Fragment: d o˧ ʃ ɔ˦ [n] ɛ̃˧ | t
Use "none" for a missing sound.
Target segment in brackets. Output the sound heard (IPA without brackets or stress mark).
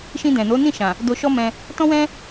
m